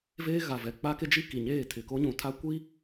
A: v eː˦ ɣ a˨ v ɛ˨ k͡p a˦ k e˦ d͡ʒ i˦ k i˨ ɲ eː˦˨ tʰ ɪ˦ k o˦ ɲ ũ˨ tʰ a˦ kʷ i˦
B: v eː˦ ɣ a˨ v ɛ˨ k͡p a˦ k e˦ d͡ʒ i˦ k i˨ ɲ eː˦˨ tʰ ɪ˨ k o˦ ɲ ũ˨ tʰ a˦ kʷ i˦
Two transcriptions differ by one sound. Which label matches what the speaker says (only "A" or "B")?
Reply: B